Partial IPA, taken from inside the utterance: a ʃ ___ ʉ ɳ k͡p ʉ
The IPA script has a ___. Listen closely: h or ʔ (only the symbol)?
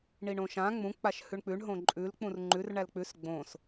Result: h